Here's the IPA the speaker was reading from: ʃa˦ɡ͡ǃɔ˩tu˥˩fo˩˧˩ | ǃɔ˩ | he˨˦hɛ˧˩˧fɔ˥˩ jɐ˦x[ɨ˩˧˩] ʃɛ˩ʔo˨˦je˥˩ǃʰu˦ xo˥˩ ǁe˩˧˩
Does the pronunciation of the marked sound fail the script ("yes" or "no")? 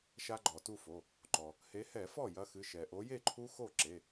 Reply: no